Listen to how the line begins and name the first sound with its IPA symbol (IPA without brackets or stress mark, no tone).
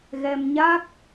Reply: ɣ